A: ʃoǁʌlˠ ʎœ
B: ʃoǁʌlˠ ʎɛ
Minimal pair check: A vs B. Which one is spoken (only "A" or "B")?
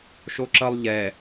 B